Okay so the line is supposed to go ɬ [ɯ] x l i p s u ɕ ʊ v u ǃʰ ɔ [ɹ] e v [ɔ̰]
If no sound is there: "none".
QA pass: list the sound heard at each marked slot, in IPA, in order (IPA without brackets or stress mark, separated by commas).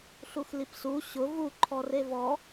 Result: u, r, ɔ